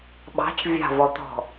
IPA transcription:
ɓ ɑ̤ t͡ʃ vʲ ɑ̤ v ɔ t̪ ɔ̤

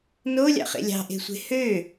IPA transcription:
n o lʲ ɑ̰ χ ḛ lʲ ɑ̤ ʔ e̤ sʷ e̤ h ø

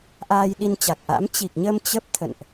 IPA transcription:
ʔ aː˧ j ɗ i˧ n t͡ɕ a˨˩ k̚ ʔ a̰˧˥ m t͡ɕ i˨˩ k̚ ɲ ə˧ m t͡ɕ ə˦˥ p̚ t̪ʰ ə̰˧˨ n ʔ

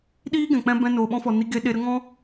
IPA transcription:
ɗ iː˦ ɡ ɛ̃˨ k͡p ɛ̃˧ b ɛ̃˧ n oː˨ ɓ ɔ̃˧ f ɔ˨ n i˧ ɡ e˧ ɗ e˧ ɾ ə˦ ŋ ɔ̃˦

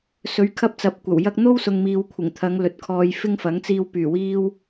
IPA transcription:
s ɵ˨˥ ɥ kʰ ɐ˧ p̚ t͡s ɐ˨˥ p̚ kʷ ɐ˨˩ w j ɐ˧ k̚ n̪ o˥ w s ʊ˨ ŋ m iː˨ w kʷʰ ɪ˨˩ ŋ t̪ʰ ɐ˨˧ ŋ l ɵ˨ t̚ kʰ ɔː˧ j f ɪ˥ ŋ f ɐ˨˥ ŋ t͡s iː˧ w p yː˨˩ w iː˧ w

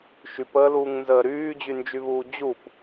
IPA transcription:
ʃ y p əː l uː ŋ n z əː ɾ yː d͡ʑ y n d͡ʒ y β uː d͡ʑ u p

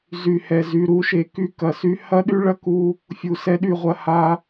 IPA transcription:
z y˨ h ɛ˨ z y˨ ɾ u˨˦ ʃ e˨ k y˦ k ɐ˨ s y˦ h ɐ˦ ɗ y˦ ɭ ɐ˦ k u˦ | fʲ u˨ s ɛ˦ ɗ y˦˨ ʁʷ ɐ˦ h a˦

